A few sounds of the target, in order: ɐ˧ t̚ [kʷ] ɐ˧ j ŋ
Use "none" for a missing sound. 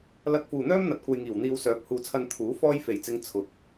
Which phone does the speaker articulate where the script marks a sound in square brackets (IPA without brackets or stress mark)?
kʷ